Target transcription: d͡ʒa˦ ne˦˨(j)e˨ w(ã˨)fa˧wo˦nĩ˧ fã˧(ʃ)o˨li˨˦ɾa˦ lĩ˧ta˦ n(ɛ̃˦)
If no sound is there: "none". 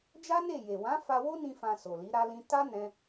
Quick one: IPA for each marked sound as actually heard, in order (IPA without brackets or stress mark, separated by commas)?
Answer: j, ã˨˦, s, ɛ̃˦